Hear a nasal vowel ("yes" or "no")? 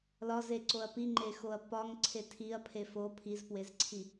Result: no